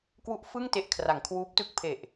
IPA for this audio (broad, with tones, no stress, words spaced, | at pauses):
kwu˦˥ʔfɯ˥˩ŋte˨˩ʔ kʰra˩˦ŋkʰwuː˦˥p̚tɯ˥˩k̚ pʰe˨˩ʔ